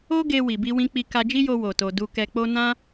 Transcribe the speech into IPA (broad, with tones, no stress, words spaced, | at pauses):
o˦ɡe˧ wi˨bi˧wĩ˧k͡pi˧ ka˧d͡ʒi˦jo˧ wo˨to˨ du˧kɛ˧k͡po˦ nã˦